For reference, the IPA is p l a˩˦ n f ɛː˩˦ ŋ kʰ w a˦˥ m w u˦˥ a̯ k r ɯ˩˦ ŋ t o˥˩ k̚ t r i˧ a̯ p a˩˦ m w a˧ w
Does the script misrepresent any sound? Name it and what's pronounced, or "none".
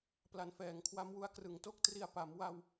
none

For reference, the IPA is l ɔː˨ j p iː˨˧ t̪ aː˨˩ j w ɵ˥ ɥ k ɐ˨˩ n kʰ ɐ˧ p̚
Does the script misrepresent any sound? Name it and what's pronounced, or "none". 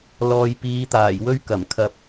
n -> m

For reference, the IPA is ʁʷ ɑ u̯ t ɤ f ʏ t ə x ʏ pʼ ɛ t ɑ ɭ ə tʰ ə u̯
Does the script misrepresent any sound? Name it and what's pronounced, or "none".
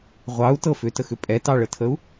none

